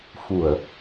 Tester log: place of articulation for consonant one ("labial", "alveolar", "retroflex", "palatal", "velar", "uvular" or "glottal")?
labial